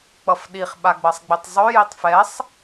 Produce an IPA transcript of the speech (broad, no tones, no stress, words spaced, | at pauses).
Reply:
k͡pʌfɗiχ ɓaɡ͡bʌsˤɡ͡bitˤzˤø jitˤfɛsˤ